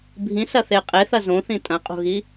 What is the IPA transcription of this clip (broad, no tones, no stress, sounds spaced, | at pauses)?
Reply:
bʱ ĩ s ɐ θ e qʼ e θ ɐ z õ θ ĩ tʼ ɐ̃ qʼ o̤ ɣ i